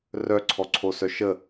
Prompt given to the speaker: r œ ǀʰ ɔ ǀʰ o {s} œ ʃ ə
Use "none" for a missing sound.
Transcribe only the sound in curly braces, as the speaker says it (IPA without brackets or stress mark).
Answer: s